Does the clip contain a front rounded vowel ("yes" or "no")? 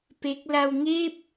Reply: no